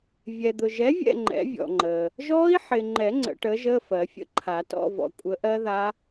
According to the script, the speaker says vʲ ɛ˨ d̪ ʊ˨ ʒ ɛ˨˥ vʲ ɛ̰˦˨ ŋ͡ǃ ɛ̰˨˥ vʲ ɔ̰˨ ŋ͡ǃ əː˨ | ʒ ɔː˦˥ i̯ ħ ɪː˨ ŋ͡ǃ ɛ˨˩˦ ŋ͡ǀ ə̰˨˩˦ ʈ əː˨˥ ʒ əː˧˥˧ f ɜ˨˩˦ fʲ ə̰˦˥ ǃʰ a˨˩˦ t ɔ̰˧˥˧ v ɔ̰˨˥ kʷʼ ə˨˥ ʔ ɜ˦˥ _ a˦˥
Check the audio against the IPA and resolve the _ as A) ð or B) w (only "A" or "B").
A